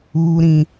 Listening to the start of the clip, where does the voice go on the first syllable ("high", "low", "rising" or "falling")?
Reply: high